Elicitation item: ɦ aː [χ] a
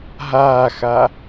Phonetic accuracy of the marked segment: incorrect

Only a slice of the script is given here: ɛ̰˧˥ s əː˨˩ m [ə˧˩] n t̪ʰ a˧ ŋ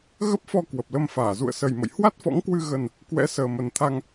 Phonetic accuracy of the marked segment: incorrect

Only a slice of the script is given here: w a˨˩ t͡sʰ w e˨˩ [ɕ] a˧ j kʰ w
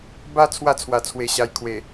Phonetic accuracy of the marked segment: correct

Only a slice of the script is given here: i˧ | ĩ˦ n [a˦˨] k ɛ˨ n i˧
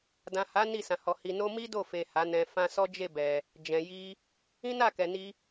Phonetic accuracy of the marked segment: correct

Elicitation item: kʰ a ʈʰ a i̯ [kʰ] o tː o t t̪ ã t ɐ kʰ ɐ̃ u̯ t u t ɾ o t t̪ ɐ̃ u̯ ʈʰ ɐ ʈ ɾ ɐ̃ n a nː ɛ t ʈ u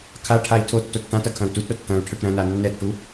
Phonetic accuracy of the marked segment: incorrect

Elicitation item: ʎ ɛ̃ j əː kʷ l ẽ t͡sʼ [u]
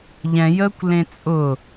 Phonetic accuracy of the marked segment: incorrect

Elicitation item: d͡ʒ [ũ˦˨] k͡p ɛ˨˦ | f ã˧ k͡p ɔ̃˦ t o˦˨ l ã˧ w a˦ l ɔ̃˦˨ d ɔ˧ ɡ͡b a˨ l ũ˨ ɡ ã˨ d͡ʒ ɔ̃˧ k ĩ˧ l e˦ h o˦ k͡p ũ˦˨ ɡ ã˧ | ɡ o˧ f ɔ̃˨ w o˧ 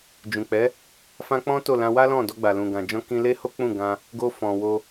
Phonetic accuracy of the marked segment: incorrect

